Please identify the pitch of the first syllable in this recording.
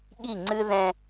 falling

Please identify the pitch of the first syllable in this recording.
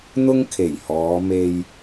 high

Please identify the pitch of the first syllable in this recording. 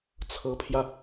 rising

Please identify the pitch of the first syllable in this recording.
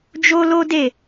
high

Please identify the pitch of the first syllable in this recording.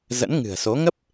rising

